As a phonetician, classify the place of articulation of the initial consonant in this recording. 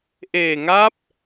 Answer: glottal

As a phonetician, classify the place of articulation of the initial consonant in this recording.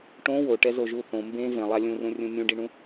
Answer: retroflex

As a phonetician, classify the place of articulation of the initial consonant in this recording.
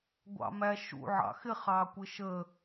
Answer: velar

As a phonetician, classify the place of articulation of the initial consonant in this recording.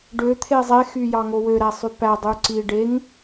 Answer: retroflex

